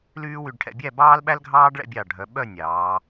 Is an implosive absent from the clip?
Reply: no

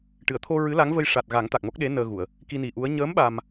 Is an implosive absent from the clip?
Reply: no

